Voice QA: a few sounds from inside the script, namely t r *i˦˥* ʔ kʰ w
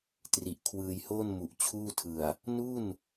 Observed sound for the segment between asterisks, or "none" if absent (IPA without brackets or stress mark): i˨˩